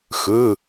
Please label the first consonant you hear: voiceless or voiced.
voiceless